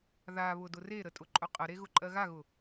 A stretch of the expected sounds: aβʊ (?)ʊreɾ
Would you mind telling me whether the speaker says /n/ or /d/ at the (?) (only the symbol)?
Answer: d